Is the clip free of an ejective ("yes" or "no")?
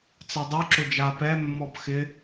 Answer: yes